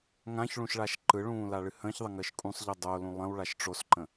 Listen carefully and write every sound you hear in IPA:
ŋ ã ç ɭ ũ ʃ ɭ a ʃ ǃ ɯ ɭ ũː l a ɭ ɨ h ə̃ː ç ðˤ ə ŋ əː ʃ kʼ ũ sˤ ʎ ɯ dˤ o l ũ lˠ ə̃ w ɭ a ʃ ʈ͡ʂ o s ǃ ə̃

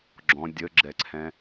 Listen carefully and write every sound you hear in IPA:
ɡ͡ǁ ɔ̃ dʲ ə ɡ͡ǁ ɛ ǀʰ ɛ̃

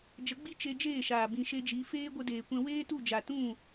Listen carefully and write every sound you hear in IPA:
d͡ʒ ə˨˦ ɡ͡b i˦ t͡ʃ e˧ d͡ʒ eː˦˨ ʃ aː˨ b ĩ˨ ʃ e˧ d͡ʒ i˨˦ f eː˦ ɡʷ ə˧ d eː˨ kʷ ɛ̃˧ w eː˦ t u˦˨ d͡ʒ a˨ t ũ˦˨

